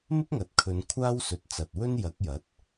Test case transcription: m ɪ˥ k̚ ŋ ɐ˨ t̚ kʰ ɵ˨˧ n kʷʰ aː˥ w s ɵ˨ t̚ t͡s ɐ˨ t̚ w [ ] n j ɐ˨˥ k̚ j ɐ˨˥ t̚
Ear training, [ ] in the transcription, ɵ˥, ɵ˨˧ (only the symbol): ɵ˥